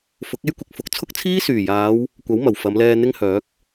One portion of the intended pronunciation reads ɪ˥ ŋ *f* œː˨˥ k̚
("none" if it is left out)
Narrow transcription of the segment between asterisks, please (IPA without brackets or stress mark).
h